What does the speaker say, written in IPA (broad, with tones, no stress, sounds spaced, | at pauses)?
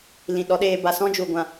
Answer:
l ĩ˨ ɗ ɔ˨˦ ɗ eː˧ b a˨ s ɔ̃˦ d͡ʒ u˨ ɡʷ ã˨